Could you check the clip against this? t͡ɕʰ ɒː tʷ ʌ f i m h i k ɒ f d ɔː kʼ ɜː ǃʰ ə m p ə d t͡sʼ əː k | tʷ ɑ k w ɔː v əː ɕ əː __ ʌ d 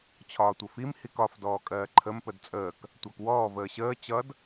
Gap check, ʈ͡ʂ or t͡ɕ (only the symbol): t͡ɕ